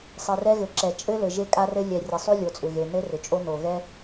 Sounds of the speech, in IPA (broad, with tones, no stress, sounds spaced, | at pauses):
sˤ ɪ˨ r ɛ˦ ɣ ɘ˨ ǁ ɛ˨ t͡ʃʼ ɘ˦ l ɘ˨ ʒ e˦ kʼ a˦ r ɘ˦ lʲ ɛ˨ rʲ ə˨ sˤ ʉ˦ lʲ o˨ t͡sʼ ʏ˨ ɣ e˨ n ɘ˦ r ʏ˨ t͡ʃʼ o˦ n o˨ ɣ ɛ˦